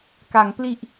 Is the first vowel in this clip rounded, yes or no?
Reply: no